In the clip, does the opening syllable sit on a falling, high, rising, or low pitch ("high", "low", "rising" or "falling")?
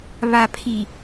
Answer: low